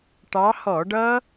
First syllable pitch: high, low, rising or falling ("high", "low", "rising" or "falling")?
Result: rising